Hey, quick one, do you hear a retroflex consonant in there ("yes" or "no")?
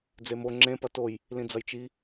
no